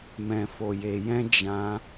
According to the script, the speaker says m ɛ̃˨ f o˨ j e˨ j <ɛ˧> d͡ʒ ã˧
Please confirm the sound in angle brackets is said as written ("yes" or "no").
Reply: no